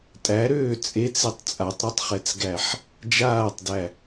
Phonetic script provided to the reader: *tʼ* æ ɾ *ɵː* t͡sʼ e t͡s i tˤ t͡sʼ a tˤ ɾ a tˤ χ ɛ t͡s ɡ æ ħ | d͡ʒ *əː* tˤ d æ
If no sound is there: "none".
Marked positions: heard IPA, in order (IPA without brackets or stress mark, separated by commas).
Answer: tʼ, øː, aː